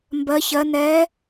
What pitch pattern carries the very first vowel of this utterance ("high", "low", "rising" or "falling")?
rising